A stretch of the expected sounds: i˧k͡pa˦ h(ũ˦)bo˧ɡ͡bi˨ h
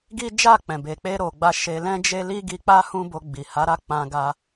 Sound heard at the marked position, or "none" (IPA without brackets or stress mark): ũ˦